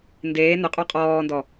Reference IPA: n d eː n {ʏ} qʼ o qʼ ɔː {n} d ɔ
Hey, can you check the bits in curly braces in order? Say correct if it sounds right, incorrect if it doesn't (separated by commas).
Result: correct, correct